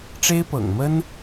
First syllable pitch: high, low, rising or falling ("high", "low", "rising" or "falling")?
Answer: high